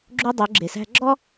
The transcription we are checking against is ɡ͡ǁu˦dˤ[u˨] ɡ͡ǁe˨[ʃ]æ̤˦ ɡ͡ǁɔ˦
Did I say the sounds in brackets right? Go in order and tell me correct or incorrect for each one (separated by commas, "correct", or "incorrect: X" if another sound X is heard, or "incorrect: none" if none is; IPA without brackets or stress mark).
incorrect: u˨˦, incorrect: s